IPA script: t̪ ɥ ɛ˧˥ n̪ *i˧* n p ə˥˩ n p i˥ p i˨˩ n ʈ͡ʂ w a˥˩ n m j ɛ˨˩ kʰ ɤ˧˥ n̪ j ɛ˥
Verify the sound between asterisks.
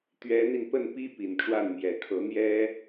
correct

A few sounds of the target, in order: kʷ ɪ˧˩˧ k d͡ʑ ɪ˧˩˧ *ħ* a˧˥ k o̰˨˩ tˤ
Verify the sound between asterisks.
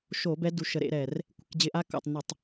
incorrect: ʔ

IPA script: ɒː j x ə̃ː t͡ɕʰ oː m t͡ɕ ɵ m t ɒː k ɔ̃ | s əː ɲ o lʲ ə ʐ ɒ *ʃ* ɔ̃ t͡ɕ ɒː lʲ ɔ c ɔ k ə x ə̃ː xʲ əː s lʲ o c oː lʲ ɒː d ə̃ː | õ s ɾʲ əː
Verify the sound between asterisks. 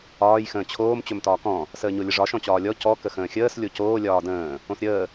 correct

